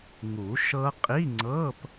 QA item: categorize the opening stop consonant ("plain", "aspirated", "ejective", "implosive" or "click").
ejective